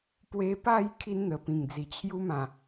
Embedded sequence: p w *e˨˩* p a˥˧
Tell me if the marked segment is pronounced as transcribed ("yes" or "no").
no